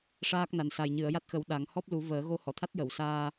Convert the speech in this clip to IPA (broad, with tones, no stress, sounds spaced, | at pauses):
ʂ aː˦˥ k̚ n a˨˩ n s a˨˩ j ɲ ɨ˨˩˨ ə̯ j a˦˥ t̚ x ə˨˩˦ w ɗ a˨˩˦ ŋ h ɔ˦˥ p̚ l u˨˩˦ v əː˨˩˦ ɣ o˧˥ h ɔ˨˩˨ t̪ʰ a˦˥ t̚ j ə˨˩˨ w s aː˧